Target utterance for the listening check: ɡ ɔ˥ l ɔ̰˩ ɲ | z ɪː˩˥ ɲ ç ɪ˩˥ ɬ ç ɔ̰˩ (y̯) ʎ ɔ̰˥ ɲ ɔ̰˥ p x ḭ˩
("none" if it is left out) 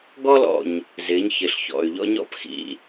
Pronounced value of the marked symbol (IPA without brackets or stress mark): y̯